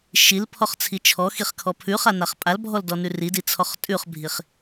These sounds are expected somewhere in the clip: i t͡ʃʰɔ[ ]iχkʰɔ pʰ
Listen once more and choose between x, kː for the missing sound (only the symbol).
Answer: x